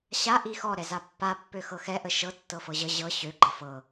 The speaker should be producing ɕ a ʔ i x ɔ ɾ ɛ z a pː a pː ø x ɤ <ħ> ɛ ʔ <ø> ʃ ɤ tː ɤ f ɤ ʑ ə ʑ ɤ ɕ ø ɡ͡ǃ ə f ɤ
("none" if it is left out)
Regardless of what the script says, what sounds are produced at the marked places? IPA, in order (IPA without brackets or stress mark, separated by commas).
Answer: x, ə